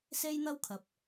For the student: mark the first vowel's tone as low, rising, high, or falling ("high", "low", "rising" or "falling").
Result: high